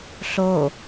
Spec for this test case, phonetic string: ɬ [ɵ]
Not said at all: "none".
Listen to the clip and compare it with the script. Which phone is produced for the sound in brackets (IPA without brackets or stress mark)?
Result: o